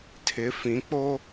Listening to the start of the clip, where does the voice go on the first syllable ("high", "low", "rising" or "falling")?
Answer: rising